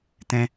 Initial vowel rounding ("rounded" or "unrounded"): unrounded